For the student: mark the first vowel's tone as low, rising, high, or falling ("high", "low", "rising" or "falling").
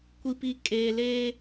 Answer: low